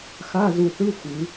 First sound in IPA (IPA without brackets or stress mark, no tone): x